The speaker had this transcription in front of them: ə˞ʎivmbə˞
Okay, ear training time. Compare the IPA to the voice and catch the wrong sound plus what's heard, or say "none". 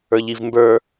none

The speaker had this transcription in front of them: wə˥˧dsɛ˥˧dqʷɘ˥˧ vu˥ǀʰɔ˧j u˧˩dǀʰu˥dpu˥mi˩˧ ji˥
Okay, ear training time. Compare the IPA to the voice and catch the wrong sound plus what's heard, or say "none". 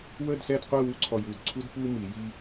v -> w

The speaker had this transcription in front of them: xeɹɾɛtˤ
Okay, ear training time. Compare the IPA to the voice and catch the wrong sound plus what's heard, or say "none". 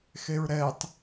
none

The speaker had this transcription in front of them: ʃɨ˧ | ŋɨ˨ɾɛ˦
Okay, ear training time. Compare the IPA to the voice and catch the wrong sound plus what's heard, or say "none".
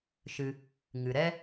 none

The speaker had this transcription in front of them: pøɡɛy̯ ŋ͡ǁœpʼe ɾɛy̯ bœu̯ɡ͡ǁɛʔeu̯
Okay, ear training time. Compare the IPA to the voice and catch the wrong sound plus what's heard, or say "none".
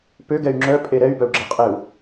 ʔ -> qʼ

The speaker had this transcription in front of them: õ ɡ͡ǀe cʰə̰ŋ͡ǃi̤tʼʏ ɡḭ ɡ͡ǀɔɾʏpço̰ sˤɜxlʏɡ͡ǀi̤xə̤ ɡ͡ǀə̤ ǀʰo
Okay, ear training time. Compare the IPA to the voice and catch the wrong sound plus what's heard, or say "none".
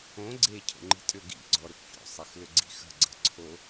none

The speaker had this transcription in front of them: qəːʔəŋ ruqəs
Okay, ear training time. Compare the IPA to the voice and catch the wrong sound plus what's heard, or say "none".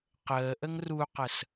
none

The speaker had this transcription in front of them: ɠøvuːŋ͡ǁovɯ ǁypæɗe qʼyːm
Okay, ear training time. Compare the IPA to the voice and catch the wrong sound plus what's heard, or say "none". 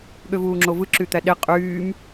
p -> t̪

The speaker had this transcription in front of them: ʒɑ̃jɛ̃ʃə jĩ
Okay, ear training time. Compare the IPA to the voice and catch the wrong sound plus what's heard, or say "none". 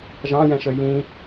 none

